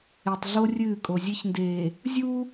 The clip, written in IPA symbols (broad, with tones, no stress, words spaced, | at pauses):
e˨tˤ ɮo˦rʲɨː˦˨kʼo˨ zʲe˦çndeː˨ | zʲuː˦